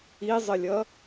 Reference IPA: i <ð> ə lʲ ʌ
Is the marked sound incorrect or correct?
incorrect: zˤ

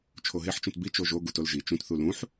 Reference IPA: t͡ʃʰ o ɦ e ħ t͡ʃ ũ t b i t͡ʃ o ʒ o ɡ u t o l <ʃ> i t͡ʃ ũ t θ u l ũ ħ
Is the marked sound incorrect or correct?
incorrect: ʒ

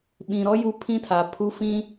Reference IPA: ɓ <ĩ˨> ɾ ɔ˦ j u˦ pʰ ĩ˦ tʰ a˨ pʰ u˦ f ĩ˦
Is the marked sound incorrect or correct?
correct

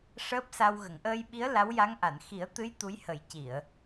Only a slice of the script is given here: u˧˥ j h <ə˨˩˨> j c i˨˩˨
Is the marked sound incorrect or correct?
incorrect: ə˨˩˦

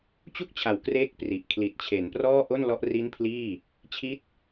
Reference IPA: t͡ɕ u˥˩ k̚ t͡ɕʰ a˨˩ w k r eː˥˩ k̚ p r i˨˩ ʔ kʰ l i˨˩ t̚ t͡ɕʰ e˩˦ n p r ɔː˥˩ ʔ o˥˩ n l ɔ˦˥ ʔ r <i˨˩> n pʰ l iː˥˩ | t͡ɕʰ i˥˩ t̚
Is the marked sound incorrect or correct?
incorrect: i˦˥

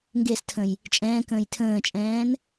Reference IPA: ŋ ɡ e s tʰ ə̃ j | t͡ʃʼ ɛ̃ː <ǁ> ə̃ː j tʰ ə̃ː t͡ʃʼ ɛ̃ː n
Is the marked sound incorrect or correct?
incorrect: k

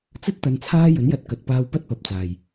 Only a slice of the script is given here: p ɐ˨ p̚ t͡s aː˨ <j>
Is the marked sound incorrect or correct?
correct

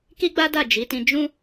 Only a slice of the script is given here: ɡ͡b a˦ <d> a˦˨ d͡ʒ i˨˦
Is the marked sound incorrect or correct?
correct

